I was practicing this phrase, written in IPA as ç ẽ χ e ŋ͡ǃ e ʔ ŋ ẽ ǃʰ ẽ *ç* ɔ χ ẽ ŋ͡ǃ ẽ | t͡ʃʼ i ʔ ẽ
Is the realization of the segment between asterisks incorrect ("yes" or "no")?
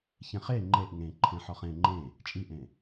yes